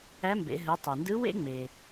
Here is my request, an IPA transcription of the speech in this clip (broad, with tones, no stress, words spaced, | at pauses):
æ˧˥mbḛ˩˧ ɦɯ˩˧ tˤe˩ndɯ˧˥ wḛ˥ŋ͡me˩